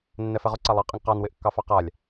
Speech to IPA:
nːɛfɛʁʊ ǀalˠɑ qʼɪŋqɑn wɪʔkːɑfɑqalʲ

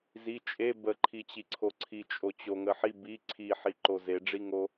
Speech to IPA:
zi t͡ʃʼe bəǃʰit͡ɕiǀʰo ǀʰit͡ʃʼot͡ɕoŋə ħi bi ǀʰiħiǃo zeɖ͡ʐiŋo

